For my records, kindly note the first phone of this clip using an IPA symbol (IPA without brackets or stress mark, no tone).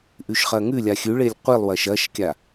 ʔ